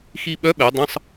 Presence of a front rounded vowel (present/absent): present